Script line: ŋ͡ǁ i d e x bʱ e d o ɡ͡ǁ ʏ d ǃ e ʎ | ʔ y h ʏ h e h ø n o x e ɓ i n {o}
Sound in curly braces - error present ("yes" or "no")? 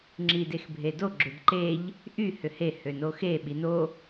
no